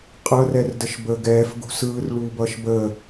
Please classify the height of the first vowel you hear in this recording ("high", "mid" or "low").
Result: mid